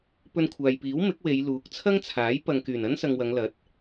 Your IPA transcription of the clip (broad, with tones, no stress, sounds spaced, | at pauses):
p ɵ˧ n kʷʰ aː˨ j p iː˨˥ w m ɪ˨˥ k̚ w e˨˧ j l uː˨˥ k̚ t͡sʰ ɐ˥ ŋ t͡sʰ aː˨˥ j p ɐ˨ ŋ k yː˨˩ n ɐ˥ n s ɐ˨ ŋ w ɐ˨˧ ŋ l ɐ˨˥ t̚